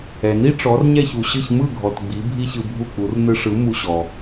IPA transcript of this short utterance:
ɛ˩ n i˥ ʈ͡ʂ ɔ˩˥ r ɲ ɛ˥˩ ç u˩ ɕ ɯ˥˩ ç m ɯ˥˩ ɡʱ ɔ˩ t ɡ͡b i˩˥ bʱ i˥ ç ɯ˧ bʱ u˥˩ k͡p u˩˥ r n ɯ˧ ʂ ɯ˩˥ m u˧ ɕ ɔ˩

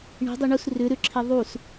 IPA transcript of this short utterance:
ɳ i̤ dˤ u ɳ u s r ʏ ɾ ʏ ǁʰ i ðˤ u s

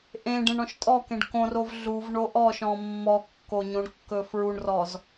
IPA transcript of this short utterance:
ʔ ẽ ɖ ẽ ɳ ɔ̃ ʃ tʼ ɔ k ẽ ɖ k õ r o v ɮ u v ɳ o ʔ ɔ ʃ ɔ̃ mː ɔ kː o ɲ õ ɳ kː ɵ f ɹ u ɳ r ɔ z

